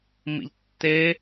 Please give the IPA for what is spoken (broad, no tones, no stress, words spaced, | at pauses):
mḭʎtːe